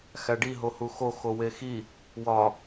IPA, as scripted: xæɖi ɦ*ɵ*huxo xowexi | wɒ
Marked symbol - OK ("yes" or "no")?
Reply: no